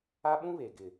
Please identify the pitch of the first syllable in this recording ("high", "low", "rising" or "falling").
high